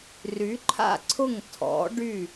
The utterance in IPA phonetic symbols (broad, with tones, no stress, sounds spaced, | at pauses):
r y˨˥ ǃʰ a̰˥˨ ǀʰ ʊ˥˨ ŋ tʰ ɔ̰˨˥ ɖ y˥˨